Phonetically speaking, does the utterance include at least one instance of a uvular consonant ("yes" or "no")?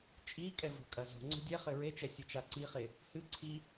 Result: yes